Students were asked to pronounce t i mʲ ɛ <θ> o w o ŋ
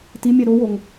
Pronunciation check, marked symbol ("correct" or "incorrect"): incorrect